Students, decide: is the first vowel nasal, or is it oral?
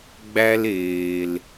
oral